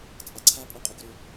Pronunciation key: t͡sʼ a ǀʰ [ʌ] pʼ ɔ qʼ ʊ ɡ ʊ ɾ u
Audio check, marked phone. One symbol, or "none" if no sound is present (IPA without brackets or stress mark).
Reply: a